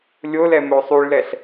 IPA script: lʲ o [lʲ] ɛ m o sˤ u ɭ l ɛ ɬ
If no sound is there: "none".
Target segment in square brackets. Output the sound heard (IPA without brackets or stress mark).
l